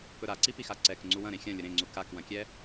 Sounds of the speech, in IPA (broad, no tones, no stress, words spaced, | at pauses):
pɵɾaǀi pixaǀɛk ŋ͡ǀuwɐ̃ ɾẽxʲɐ̃ lʲəɾẽŋ͡ǀu kakwɐ̃kʲɛ